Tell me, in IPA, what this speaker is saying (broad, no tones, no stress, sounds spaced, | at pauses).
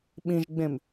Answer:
ɓ ĩ ʒ ɡ͡b ẽ m